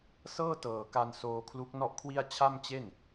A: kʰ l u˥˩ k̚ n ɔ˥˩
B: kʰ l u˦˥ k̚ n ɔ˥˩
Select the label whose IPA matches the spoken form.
B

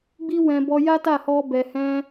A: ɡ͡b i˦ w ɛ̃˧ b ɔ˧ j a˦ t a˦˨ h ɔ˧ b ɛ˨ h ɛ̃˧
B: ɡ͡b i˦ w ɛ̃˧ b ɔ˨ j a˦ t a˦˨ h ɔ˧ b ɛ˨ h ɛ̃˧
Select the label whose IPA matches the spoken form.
A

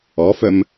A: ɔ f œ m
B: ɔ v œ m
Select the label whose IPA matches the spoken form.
A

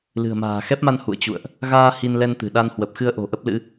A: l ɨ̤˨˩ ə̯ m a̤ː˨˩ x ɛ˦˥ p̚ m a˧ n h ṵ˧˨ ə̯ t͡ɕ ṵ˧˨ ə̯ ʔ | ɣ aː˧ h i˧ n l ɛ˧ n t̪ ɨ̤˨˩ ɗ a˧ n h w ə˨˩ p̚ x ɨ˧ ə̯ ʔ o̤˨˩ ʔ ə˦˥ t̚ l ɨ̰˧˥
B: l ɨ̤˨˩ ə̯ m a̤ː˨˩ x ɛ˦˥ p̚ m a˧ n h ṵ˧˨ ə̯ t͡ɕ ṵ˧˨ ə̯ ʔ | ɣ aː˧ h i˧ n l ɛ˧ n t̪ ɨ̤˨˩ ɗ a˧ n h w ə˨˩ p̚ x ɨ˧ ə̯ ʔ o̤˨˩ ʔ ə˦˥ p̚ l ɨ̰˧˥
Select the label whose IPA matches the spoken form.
B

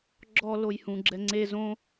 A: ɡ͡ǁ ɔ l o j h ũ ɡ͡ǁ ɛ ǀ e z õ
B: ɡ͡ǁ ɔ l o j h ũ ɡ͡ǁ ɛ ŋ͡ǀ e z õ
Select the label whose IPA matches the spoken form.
B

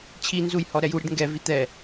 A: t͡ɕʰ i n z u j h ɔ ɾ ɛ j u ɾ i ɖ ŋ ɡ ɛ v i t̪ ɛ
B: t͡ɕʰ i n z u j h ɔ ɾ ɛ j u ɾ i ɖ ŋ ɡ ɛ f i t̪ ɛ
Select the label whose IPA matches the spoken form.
A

